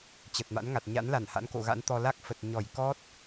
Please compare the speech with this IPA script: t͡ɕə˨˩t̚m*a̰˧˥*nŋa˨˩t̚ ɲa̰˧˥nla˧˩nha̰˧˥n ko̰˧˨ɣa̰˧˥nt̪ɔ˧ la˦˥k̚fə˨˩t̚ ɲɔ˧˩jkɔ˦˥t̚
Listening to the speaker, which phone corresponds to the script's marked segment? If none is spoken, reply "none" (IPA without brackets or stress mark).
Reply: a̰˧˥